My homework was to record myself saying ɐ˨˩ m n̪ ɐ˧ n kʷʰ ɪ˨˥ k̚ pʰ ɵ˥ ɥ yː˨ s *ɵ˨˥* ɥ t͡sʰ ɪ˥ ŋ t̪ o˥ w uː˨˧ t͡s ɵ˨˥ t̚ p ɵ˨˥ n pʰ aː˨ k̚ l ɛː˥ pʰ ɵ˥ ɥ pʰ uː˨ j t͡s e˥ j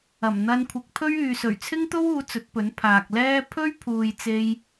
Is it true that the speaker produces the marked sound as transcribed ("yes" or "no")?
no